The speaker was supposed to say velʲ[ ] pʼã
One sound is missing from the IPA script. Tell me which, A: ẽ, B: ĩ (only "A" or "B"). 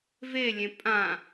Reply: A